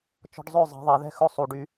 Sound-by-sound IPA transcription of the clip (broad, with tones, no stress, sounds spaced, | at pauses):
t͡ʃ ɔ̤˧ ɖ zˤ ø˦˨ zˤ ɛ̤˨ ðˤ e˨ ð ɛ̤˧ x ɵ˦ sˤ u˨ ɖ y˧